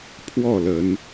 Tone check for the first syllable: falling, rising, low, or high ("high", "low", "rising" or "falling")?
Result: falling